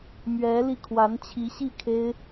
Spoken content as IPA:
mɥɛ˧˥li˧ kʰwa˧˥nt͡ɕʰi˧˥ɕi˥˩ kʰe˥ɪ̯

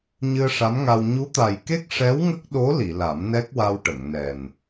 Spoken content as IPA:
ɲɨ˧ə̯ʂa˧˥mŋa˧w ɲu˧˥t̪a˨˩jke˦˥k̚ ʂɛ˧˥wŋə˦˥k̚ ɗo˧˥ li˨˩˨ la˨˩˦mnɛ˦˥k̚wa˧wʈə˨˩˨ŋ nɛ˨˩n

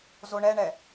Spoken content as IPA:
zoɳɛɳɛ

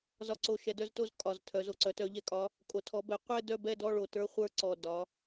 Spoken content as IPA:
zɒ˨˩ǀo˨˩ ʃɛ˩˧dœ˥˧zto˥˧z kʼɒ˨˩ztʰœ˩˧z o˨˩ǀœ˩˧tœ˩˧ ʎɛ˩˧kʼɒ˩˧ | kʼo˩˧ tʰɔ˩˧bɛ˩˧ qʷɛ˥˧ dœ˥˧bɛ˥˧dɔ˥˧ɭo˨˩ tə˞˥˧χʷə˞˥˧ǀɔ˨˩ dɒ˩˧

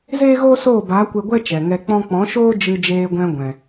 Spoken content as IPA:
zeː˦ɣoː˦ soː˦˨baː˨˦kʷe˧ ɡʷɛ˦ t͡ʃɛ˨ŋɛ˧k͡pɔ̃˦ k͡pɔ̃˨˦ʃoː˦ d͡ʒɨ˧d͡ʒeː˧ɡʷɛ̃˧ ɡʷɛ̃˨

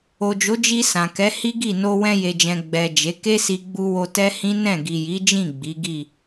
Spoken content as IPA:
o˨d͡ʒo˨˦d͡ʒi˧ sã˨kɛ˨˦ hi˦ɡi˦˨ no˧wɛ̃˧je˨d͡ʒɛ̃˨ ɡ͡bɛ˨ d͡ʒe˨˦ ke˦si˧ɡ͡bu˧wo˧ tɛ˦hĩ˦ nɛ̃˦˨ɡi˨ji˨˦d͡ʒĩ˦˨ ɡ͡bi˨˦ɡi˦˨

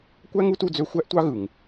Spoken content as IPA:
kʷæ˥ŋu˥tu˦d͡zø˦ xʷæ˥ʔtʷɑ˥ɣɯ˩ŋ

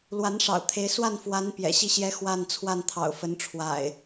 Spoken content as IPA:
lwa˨˦nʂɑ̰˨˩ʊ̯t̪ʰe˨˦ɪ̯ swa˥˨nfwa˨˦n pjɛ̰˨˩ɕi˥˨ ɕjɛ˦ xwa˥˨n t͡sʰwa˥˨nt̪ʰɑ̰˨˩ʊ̯fə˨˦nʈ͡ʂʰwa̰˨˩ɪ̯

